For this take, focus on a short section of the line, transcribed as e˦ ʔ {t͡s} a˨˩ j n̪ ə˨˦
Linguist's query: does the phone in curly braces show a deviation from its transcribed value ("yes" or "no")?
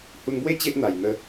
yes